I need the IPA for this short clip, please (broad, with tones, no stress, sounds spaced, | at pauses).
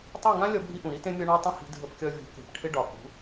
tˤ e˦˨ ŋ ã˦ lʲ ɒ˦ bʱ i˦ ʔ ũ˨ ɾ i˦ t ẽ˦ mʲ ɒ˦ ɳ a˦ tˤ ə̃˦ h i̤˧ dʱ ə˧ p kʲ ɒ˧ vʲ ṳ˨˦ k e̤˨ p ʈʰ ɪ˦ ɖ ɒ˨ k ṳ˨˦